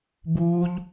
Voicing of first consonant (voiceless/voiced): voiced